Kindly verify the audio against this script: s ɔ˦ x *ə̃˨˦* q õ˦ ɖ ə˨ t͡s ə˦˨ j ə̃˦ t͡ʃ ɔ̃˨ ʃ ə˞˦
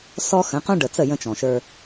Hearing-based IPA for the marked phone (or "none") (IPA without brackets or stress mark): ə̃˨˦